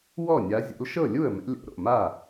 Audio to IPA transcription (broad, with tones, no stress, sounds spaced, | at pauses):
w ɔ˥˩ nʲ a˨˦ zʲ o̰˨˦ l ʃ ɤ˥˩ lʲ u˥˩ ə̯ m ɛ̰˨˦ lʲ o̰˨˦ ɾ o̰˥˩ m a˥˩